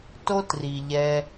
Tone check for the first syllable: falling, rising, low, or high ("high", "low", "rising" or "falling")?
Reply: high